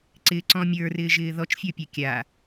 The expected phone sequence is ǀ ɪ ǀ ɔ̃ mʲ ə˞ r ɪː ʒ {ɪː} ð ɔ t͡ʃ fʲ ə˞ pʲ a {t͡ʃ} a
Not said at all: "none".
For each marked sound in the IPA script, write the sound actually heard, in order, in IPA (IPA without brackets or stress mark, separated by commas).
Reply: ɪː, kʲ